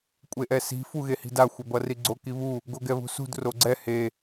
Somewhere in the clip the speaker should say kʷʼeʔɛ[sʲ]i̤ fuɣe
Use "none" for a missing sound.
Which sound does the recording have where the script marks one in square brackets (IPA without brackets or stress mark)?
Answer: s